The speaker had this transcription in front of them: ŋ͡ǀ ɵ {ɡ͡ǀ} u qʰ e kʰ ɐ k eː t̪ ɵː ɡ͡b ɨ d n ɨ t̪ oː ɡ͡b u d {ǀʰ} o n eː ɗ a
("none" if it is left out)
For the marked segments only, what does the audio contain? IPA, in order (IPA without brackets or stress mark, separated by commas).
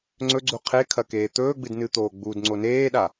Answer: ɡ͡ǀ, ŋ͡ǀ